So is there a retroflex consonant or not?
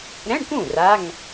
yes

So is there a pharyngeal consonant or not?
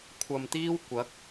no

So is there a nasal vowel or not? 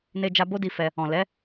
yes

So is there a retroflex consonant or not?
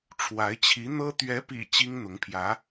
yes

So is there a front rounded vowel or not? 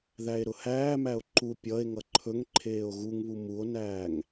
no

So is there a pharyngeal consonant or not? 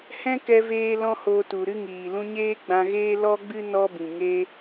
no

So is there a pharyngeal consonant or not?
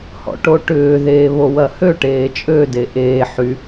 yes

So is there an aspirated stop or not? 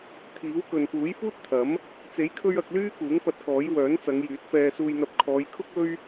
yes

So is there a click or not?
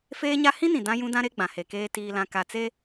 no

